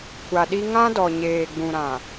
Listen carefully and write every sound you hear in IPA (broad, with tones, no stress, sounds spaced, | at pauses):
kʷ a˨ ɗ i˦ ŋ ã˦ d ɔ˨ ɲ eː˨ ɡ͡b ũ˨ ɾ ã˨